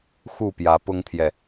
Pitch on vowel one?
falling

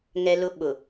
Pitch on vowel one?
high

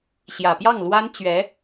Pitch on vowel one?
low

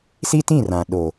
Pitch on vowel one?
high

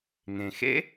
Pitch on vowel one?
low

